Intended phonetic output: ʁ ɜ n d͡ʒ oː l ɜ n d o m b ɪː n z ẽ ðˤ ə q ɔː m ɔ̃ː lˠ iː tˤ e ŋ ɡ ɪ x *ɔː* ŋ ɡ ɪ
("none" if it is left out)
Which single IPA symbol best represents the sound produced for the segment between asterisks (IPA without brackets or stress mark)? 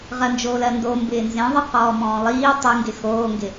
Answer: oː